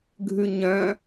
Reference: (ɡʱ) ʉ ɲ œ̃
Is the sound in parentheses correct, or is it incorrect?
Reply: correct